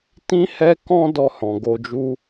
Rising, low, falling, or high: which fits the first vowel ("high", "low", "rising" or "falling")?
high